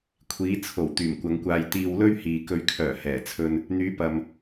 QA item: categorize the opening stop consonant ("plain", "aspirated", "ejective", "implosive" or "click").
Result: aspirated